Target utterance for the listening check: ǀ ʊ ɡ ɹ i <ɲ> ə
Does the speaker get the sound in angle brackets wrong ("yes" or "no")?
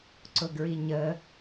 no